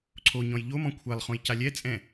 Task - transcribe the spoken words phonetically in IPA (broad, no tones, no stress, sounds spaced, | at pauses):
ǀʰ o ɲ ɔ̃ j ʎ o m ɔ̃ kʷʰ ɛ lˠ χ õ j c a lʲ ɛ t͡sʼ ɛ̃